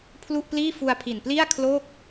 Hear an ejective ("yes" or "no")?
no